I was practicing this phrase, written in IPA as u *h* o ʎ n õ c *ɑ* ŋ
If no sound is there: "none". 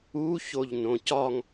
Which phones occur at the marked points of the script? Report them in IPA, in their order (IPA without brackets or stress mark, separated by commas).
ç, ɒ